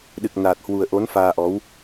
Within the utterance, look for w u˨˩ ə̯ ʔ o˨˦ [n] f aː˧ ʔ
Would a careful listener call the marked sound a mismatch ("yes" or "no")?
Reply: no